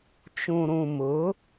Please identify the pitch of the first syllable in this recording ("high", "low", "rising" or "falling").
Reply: low